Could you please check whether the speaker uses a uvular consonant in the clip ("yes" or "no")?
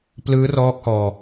no